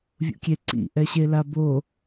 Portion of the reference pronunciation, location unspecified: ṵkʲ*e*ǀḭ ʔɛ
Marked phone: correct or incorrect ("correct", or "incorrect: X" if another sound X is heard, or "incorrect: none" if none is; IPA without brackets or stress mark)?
correct